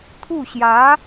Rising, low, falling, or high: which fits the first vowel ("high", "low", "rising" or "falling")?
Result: falling